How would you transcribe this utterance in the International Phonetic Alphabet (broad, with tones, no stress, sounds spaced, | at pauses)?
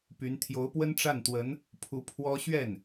p y˧˥ n t̪ʰ j o˧˥ ʊ̯ p w ə˥ n ʈ͡ʂ a˥˩ n t̪ w ə˧˥ n | pʰ u˧˥ pʰ w ɔ˥ ɕ ɥ ɛ˥˩ n